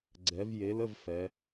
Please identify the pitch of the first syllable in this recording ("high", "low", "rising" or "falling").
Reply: rising